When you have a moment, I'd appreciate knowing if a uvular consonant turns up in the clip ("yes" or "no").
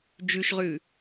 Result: yes